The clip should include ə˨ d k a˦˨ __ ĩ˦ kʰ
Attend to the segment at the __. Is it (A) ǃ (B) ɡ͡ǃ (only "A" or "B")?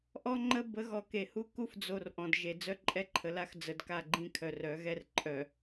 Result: B